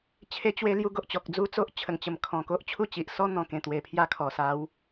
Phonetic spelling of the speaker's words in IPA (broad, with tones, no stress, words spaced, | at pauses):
t͡ɕʰe˧t͡ɕwe˧ lju˥˧ɡo˨ʔt͡ɕɔ˨k̚ d͡zu˦t͡so˦ʔt͡ɕʰə˨˩ŋt͡ɕə˨˩m kʰɔ̃˨˩ko˦ʔt͡ɕʰu˥˧t͡ɕi˨ʔ sɔ˦ n̪ɔ̃˨˩kẽ˨˩ t̪we˨˩ pʰja˥˧kʰɔ˨˩ sa˨˦w